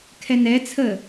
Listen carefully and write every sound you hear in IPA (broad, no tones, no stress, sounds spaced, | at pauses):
kʰ ɛ n ɛ t͡sʰ ə